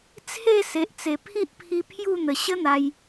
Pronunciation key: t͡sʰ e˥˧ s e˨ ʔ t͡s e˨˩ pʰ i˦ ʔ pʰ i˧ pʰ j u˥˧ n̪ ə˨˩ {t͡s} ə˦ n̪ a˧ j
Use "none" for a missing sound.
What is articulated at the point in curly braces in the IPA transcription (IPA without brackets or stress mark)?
ɕ